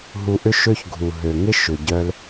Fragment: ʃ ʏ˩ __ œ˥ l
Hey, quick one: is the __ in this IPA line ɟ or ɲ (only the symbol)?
ɟ